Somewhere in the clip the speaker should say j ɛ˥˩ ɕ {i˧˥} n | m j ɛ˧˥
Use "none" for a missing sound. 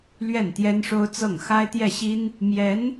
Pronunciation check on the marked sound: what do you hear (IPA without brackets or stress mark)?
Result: i˥